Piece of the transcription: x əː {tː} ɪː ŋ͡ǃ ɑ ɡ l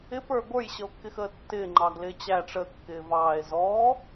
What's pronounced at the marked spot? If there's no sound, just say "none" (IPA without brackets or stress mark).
tː